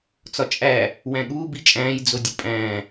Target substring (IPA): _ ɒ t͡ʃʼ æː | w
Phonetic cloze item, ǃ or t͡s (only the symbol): t͡s